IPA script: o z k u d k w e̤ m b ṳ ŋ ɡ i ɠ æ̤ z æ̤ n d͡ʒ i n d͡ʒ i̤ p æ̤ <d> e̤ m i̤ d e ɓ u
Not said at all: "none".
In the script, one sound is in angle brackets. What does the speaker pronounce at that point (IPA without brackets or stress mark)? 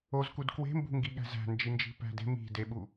d